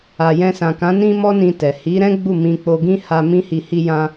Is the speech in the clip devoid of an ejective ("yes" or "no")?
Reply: yes